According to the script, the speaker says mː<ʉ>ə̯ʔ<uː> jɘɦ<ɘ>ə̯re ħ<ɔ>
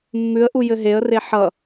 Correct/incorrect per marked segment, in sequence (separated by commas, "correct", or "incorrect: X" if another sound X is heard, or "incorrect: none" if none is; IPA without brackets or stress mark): correct, incorrect: u, incorrect: e, incorrect: ʌ